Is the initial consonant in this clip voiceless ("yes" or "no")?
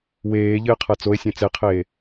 no